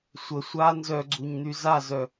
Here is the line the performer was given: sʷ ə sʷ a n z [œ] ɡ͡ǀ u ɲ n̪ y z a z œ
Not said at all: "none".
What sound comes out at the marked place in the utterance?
œ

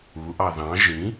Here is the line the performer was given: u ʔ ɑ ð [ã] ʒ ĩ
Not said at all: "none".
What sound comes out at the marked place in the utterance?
ɑ̃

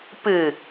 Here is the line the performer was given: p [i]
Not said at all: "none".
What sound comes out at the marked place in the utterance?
ɨ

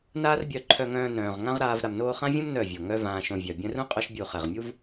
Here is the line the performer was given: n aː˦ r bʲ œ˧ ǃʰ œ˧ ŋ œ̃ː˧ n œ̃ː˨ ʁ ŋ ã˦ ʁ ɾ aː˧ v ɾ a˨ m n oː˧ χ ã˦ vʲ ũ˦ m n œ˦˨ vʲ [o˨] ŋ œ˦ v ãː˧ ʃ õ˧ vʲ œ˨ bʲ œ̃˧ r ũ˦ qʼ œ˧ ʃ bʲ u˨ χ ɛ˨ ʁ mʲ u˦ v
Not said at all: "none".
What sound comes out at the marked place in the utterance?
o˨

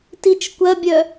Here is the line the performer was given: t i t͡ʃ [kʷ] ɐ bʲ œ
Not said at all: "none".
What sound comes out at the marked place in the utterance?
kʷ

